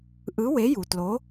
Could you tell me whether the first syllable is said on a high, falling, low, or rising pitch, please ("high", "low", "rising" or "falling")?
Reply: rising